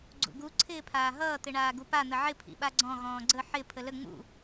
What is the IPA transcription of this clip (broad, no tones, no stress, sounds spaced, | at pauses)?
ɡ͡ǀ ṵ ɡ u ǀʰ ɪː pʰ aː ɦ ʌː t̪ ɪ ɳ aː ɡ u p a n̪ ə ʕ ɪ pʰ ḭ ɓ a ɡ͡ǀ ɔ̃ ɣ ɔ̃ː ɡ͡ǀ ə ħ ɪ pʰ ə l ə ŋ͡m ṵ